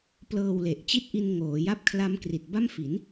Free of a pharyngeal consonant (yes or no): yes